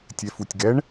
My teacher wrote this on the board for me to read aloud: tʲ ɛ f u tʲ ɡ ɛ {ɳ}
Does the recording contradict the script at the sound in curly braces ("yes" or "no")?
no